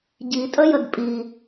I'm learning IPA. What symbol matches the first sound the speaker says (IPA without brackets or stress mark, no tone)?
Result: ɟ